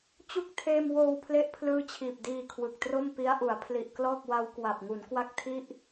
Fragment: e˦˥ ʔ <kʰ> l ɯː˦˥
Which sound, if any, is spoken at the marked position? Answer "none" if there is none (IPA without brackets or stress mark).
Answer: pʰ